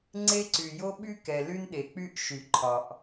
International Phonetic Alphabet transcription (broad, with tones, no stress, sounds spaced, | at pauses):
ŋ͡ǀ e˥ ǀ y˩ j o˥ ɓ y˥ k ɛ˩ l y˥ n ɗ e˩ k͡p y˥ ʔ ʃ y˩ ǃʰ ɒ˩ ʔ